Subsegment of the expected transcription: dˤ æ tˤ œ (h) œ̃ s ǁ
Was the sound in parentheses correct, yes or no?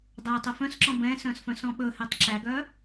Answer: no